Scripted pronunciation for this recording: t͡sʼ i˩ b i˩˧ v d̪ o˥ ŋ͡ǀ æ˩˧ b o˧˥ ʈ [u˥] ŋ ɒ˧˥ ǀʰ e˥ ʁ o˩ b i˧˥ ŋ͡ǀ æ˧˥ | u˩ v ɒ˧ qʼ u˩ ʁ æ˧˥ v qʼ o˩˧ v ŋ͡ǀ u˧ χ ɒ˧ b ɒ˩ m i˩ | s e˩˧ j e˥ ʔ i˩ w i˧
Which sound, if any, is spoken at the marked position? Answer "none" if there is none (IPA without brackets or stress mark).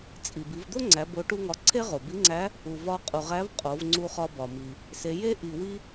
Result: u˥